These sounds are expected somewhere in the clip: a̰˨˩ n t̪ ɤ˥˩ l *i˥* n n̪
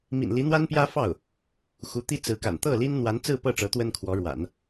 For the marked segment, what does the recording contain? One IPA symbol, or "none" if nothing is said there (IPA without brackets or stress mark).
i˥